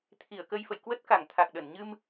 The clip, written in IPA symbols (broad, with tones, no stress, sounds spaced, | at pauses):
t̪ʰ i˧˩ ə̯ k ə˧ j f ə̰˧˨ j k w ə˦˥ t̚ k a˧˩ ŋ t̪ʰ a˨˩ k̚ ɗ ə˧˩ n ɲ ɨ˧ m